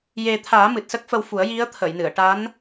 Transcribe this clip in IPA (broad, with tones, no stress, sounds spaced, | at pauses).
j e˨˩ t̪ʰ aː˨˩˦ m ɨ˨˩ t̚ s ə˦˥ k̚ f ə˧ w f u˨˩˦ ə̯ j i˧˥ ə̯ t̪ʰ ə˨˩˨ j n ɨ˨˩˨ ə̯ ʈ a˧˥ n